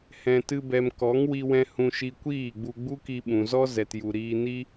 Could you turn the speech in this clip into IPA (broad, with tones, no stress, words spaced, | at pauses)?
hɛ̃˧tɨ˦bɛ˧m kɔ˨˦ŋwi˧wɛ̃˧ hũ˧ʃi˧kʷiː˦˨ɡ͡bu˧ ɡ͡bu˦ki˧ɓũ˨zɔ˦ zɛ˨tju˨ɾiː˧ni˦